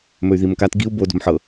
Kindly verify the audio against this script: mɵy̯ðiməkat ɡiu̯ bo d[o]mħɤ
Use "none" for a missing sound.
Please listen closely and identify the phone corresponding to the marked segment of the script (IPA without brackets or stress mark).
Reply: o̤